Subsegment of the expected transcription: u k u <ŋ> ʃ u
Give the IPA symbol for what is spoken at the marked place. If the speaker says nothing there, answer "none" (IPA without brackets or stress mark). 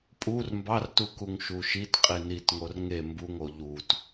ŋ